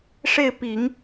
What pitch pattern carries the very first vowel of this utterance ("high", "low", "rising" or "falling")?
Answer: falling